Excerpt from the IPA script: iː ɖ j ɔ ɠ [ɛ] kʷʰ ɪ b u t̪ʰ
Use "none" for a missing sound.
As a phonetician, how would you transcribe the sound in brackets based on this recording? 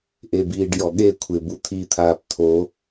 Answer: e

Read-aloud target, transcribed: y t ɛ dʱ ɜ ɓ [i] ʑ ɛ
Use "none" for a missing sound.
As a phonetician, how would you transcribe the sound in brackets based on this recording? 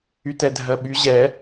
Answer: y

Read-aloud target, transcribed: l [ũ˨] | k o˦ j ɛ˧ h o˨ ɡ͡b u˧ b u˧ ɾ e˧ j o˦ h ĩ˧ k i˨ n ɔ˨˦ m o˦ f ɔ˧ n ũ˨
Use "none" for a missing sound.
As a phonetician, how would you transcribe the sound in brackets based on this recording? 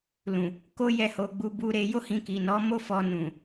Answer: ũ˨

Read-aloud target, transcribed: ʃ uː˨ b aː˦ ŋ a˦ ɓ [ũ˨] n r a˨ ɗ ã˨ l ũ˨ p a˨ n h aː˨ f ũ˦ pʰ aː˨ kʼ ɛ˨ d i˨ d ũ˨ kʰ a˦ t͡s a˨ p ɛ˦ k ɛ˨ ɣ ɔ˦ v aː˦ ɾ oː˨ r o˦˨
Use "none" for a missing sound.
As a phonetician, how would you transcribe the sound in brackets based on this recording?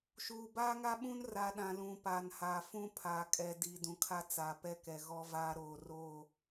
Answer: ũ˦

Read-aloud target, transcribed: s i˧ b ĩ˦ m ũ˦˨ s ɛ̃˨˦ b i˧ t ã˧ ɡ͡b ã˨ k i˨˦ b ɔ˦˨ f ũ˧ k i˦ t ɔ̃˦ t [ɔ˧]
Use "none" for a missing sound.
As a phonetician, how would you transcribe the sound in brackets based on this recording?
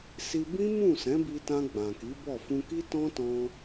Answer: ɔ̃˧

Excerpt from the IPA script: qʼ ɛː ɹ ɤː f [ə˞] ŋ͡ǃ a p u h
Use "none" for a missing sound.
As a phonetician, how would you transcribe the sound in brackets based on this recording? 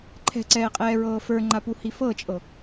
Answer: ə˞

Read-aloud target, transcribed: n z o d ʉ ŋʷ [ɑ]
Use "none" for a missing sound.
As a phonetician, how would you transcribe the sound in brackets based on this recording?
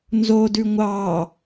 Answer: ɑ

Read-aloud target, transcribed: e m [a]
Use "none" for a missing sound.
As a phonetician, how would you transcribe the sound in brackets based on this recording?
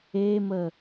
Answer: ə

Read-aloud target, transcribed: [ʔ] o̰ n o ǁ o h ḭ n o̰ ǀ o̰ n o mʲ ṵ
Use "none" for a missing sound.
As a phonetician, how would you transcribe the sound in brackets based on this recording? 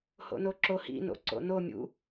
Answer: h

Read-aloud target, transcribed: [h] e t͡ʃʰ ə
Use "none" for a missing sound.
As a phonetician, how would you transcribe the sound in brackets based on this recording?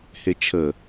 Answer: h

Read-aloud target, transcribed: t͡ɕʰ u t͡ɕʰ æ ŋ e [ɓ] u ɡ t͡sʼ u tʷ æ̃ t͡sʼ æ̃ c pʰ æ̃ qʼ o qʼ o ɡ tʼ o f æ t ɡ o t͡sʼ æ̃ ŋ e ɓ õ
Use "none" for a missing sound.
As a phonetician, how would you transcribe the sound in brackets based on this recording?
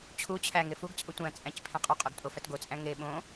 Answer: f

